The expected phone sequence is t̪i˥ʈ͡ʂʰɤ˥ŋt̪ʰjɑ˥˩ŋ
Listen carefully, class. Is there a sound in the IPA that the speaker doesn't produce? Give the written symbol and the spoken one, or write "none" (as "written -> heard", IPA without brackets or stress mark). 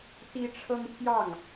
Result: none